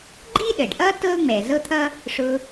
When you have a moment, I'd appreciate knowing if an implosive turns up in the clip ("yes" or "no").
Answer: yes